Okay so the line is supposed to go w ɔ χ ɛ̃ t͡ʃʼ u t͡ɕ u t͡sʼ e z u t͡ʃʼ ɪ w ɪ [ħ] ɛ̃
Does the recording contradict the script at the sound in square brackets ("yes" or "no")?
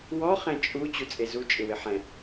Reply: no